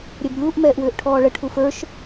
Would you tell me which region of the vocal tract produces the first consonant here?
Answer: tongue tip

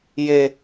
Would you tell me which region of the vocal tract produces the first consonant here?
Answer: palate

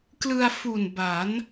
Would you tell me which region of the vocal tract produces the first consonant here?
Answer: velum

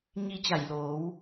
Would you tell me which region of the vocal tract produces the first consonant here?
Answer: palate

